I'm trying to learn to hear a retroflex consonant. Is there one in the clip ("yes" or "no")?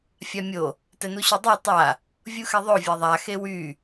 no